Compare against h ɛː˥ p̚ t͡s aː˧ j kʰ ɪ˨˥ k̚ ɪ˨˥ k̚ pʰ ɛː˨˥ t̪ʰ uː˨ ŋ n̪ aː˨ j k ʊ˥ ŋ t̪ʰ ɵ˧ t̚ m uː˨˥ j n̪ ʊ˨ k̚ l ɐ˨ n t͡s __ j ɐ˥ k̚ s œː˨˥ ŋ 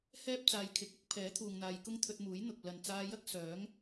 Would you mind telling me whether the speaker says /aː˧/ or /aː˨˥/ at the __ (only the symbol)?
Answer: aː˧